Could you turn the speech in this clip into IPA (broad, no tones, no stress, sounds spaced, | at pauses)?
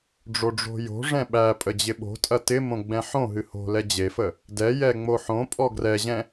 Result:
ɖ͡ʐ o ɖ͡ʐ o̤ j o̤ ʐ ɛ̃ ɓ æ pʼ ə d͡ʑ ɪ ɓ o̤ tʼ ɐ t ɪ m õ ɡ͡b ɛ̃ ħ õ ɦ ɨ h o̤ l ɛ d͡ʑ e f ə | d ɛ j ɛ ŋ͡m o ħ õ pʼ ɔ ɡ r ɛ ʑ ɛ̃